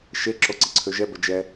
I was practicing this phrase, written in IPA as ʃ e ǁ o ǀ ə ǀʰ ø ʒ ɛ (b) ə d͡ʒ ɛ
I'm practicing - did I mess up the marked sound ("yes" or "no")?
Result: no